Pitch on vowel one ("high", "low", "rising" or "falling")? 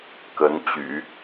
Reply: rising